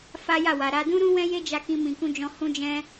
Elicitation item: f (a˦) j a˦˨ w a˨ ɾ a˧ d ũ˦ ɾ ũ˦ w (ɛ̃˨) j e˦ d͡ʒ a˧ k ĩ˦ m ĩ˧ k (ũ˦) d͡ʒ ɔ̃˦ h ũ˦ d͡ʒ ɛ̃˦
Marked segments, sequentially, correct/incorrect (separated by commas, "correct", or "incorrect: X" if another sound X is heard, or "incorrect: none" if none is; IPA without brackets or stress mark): correct, incorrect: ɛ̃˦, correct